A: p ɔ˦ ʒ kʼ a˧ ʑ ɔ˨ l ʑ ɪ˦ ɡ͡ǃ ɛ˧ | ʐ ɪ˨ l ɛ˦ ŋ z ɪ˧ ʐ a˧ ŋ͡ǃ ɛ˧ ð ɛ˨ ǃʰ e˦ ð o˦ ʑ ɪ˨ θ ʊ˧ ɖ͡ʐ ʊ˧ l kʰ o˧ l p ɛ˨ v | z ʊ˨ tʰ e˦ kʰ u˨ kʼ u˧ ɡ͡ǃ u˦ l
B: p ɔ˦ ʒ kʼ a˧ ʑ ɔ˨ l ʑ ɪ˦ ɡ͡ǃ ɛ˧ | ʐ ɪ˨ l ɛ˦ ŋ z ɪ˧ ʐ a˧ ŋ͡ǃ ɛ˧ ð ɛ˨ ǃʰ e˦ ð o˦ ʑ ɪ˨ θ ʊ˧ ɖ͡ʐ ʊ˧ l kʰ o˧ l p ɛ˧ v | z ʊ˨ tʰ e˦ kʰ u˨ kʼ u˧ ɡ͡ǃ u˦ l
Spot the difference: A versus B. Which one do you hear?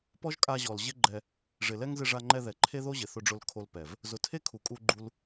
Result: A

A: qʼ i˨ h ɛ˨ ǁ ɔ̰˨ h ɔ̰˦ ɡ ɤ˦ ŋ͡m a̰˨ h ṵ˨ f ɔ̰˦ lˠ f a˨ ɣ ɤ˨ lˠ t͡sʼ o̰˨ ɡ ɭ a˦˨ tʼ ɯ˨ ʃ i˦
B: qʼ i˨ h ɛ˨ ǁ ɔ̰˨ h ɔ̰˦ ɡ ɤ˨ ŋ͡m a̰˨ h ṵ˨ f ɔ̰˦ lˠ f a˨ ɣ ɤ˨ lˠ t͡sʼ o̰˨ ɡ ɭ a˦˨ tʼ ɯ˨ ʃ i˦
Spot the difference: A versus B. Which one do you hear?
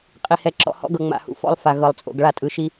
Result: B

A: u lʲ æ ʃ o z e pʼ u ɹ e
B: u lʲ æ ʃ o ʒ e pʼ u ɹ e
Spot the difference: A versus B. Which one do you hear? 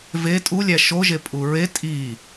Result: B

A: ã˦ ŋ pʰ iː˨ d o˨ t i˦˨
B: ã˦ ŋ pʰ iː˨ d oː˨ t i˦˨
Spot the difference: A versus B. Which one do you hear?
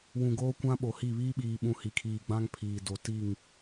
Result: A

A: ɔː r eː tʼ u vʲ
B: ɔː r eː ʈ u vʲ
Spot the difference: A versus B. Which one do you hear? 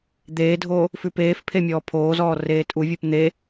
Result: A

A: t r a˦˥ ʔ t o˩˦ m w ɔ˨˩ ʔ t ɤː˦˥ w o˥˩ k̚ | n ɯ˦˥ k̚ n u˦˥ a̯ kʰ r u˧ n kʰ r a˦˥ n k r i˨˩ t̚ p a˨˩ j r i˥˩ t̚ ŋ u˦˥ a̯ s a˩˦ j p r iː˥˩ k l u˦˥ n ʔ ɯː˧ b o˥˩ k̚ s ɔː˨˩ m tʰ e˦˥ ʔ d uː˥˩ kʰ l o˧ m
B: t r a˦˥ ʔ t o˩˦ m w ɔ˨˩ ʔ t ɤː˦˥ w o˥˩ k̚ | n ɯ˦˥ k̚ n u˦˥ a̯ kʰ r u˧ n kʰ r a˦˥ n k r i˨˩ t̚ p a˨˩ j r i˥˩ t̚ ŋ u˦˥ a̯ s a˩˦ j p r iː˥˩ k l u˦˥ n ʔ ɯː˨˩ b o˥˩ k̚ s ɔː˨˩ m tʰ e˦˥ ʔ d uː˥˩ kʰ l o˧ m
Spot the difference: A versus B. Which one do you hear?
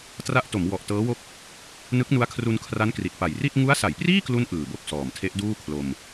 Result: B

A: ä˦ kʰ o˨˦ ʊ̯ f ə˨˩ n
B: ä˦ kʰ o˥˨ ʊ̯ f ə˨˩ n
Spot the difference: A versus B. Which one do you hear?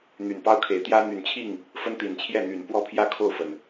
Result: B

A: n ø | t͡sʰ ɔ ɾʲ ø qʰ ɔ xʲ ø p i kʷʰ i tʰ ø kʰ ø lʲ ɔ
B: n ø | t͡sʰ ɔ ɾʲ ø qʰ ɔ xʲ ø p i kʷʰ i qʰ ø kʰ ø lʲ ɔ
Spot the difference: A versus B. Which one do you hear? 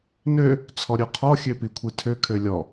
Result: A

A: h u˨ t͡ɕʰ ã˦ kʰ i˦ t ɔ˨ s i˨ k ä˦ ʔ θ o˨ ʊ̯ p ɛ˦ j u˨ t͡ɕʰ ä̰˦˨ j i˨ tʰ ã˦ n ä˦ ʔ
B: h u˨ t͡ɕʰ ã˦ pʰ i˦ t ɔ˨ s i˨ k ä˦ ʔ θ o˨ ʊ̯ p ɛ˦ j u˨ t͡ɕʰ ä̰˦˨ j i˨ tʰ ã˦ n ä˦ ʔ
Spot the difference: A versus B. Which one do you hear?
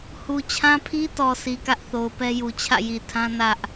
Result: B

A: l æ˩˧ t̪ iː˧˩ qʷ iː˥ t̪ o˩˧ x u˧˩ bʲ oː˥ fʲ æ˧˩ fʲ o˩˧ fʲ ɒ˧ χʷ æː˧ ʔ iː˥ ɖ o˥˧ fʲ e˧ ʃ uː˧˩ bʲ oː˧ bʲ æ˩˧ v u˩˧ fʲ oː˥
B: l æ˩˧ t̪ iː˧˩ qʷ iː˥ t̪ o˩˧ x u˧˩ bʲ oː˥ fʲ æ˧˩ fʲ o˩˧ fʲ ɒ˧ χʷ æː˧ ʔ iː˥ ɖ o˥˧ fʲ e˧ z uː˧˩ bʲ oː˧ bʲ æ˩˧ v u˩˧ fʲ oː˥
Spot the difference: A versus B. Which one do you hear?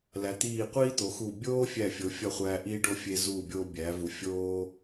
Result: B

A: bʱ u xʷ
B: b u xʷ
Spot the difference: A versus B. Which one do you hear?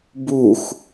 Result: B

